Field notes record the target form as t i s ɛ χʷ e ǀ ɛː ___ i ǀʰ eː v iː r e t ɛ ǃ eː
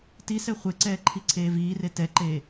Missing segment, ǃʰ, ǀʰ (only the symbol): ǃʰ